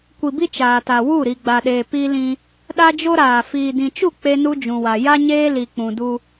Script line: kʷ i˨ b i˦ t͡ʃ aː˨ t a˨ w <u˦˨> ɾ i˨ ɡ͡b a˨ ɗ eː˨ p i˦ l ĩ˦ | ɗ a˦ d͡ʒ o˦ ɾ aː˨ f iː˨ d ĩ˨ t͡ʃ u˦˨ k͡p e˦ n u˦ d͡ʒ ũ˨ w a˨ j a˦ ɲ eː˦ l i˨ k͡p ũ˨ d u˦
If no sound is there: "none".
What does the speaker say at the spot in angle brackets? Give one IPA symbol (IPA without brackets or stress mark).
u˦˨